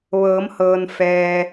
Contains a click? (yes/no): no